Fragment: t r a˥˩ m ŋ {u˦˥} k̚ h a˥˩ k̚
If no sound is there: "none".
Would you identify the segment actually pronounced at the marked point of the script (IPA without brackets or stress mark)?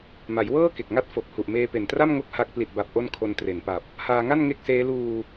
o˦˥